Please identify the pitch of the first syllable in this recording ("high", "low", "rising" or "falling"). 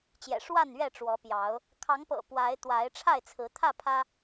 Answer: low